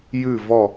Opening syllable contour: falling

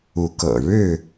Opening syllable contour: rising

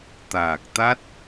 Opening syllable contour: low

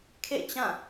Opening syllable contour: falling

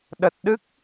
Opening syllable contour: low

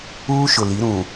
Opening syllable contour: high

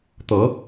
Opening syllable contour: rising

